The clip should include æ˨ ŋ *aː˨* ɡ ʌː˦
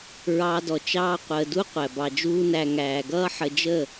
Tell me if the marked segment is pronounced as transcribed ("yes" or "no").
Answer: no